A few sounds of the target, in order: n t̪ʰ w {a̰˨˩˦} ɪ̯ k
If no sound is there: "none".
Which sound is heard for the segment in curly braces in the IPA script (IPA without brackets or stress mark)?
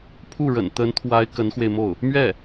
a˧˥